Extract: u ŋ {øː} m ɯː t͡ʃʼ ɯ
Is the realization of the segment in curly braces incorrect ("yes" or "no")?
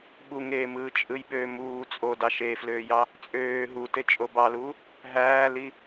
yes